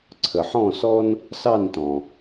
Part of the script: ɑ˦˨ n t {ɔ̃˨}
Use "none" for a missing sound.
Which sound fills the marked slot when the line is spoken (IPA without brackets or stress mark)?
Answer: ɔ̃˨